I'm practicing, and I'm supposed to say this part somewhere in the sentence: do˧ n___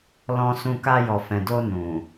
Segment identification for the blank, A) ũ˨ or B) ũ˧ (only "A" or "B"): A